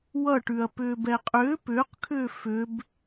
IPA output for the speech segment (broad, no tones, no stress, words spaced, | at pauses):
wʌʈʉɐ̯ pʏːbɛqʼʏː pʏːqkʰʏː fʏb